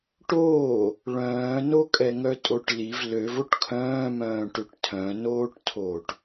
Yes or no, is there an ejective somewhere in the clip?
yes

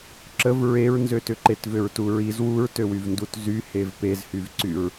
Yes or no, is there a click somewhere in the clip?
yes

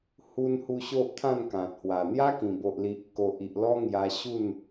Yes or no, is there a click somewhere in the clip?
no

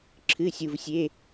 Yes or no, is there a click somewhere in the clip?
yes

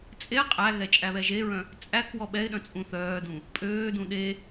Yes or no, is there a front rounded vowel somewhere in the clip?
yes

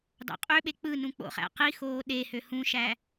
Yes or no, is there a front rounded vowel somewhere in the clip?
yes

